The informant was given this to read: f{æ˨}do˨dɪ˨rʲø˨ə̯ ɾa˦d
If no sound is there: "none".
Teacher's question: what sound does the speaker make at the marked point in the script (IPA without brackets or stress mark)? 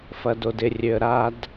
ɐ˨